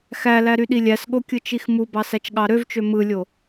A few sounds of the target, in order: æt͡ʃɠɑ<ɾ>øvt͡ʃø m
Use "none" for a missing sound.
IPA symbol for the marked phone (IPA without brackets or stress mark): ɾ